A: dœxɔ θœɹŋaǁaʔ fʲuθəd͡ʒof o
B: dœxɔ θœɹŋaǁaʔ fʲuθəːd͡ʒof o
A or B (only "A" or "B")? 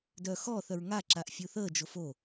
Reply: B